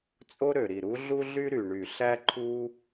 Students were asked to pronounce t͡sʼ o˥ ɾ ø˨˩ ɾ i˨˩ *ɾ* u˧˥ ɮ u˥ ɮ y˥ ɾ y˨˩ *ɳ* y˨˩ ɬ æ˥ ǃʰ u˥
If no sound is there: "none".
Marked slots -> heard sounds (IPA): ɾ, ɳ

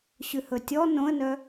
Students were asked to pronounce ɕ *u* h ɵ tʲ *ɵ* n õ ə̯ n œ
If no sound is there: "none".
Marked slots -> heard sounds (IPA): ʉ, ɔ

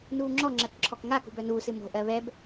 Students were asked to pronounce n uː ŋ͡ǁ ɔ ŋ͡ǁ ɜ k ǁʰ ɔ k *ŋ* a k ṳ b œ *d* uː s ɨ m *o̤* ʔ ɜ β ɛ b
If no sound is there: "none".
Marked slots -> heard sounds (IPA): ŋ, n, o̤

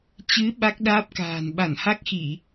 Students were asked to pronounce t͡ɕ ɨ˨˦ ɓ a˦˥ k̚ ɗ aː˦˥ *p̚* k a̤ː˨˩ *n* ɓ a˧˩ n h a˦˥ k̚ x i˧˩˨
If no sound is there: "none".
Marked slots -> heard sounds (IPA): p̚, n

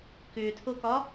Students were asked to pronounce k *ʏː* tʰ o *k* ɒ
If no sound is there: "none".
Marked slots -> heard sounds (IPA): ʏː, k

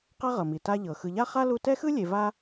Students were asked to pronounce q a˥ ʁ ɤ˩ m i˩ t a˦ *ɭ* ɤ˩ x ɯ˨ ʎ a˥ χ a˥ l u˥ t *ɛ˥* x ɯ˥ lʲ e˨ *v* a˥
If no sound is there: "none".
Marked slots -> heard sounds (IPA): ʎ, ɛ˥, v

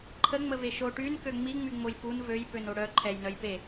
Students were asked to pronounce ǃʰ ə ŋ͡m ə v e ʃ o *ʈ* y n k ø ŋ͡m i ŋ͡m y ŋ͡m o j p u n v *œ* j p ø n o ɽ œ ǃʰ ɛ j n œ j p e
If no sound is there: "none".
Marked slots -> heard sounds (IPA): ʈ, ø

